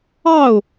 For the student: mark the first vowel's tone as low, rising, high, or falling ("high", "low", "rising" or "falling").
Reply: falling